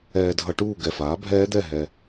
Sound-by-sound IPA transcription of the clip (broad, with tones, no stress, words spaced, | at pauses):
ɛː˨dʱʌ˨ʈuː˥˨ ɡɛ˨faː˩˥bʱɛː˦˥d̪ɛ˥˨ ɦɛ˨